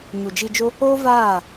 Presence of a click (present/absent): absent